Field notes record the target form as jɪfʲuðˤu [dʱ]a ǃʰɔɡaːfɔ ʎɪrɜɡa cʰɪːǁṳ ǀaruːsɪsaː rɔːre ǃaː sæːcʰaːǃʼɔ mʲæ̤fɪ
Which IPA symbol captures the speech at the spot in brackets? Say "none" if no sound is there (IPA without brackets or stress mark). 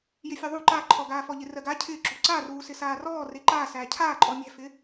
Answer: ǃ